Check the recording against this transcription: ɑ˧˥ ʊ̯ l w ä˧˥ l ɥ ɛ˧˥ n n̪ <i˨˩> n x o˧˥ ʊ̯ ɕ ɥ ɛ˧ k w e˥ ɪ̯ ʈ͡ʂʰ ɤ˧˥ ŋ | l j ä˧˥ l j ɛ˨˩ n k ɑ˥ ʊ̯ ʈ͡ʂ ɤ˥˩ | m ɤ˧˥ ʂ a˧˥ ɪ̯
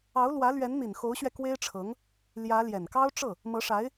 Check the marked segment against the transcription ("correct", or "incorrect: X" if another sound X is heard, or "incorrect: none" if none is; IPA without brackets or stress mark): correct